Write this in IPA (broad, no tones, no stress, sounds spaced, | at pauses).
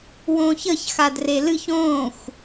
w õː ç ə ç x a d r e l ɨ ç õː xʷ